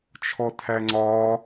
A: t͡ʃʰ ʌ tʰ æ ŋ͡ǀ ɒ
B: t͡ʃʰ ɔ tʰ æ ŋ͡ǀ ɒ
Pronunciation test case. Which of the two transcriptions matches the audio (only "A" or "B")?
B